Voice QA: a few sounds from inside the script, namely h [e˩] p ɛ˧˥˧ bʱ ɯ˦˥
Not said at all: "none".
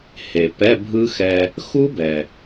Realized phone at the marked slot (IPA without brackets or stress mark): e˩